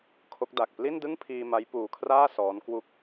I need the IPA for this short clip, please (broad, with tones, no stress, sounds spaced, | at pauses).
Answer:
kʰ o˦˥ k̚ d a˨˩ k̚ p l i˥˩ n d ɯ˥˩ ŋ pʰ iː˧ m a˦˥ j p uː˧ kʰ r aː˥˩ s ɔː˦˥ n k w u˥˩ k̚